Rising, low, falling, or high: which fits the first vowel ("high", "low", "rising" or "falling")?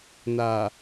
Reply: low